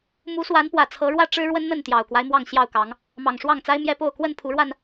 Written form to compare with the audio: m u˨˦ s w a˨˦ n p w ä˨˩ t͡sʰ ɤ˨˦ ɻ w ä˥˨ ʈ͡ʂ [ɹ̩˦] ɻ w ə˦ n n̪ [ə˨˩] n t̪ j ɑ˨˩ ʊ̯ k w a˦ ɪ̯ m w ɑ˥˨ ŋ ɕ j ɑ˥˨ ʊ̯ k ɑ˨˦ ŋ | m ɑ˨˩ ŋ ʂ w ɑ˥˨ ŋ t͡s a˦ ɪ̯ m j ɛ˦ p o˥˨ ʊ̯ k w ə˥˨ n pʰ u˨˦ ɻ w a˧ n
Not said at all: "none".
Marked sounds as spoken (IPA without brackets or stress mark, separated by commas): ɻ̩˦, ə˥˨